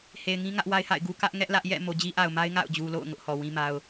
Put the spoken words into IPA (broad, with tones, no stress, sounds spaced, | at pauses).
h e˨ ɪ̯ ŋ ĩ˦ ŋ ä˦ ʔ w a˦ ɪ̯ h a̰˦˨ ɪ̯ ɡ u˦ k ä˦ ʔ ŋ ɛ˦ ʔ l ä˦ ʔ j ɛ̰˦˨ m o˨ d͡ʑ i˦ ʔ a˨ ʊ̯ m a˦ ɪ̯ ŋ a̰˦˨ ʊ̯ d͡ʑ u˨ l o̰˦˨ ʊ̯ ŋ ʊ˦ ʔ h ɔ˨ w ĩ˦ m a˦ ʊ̯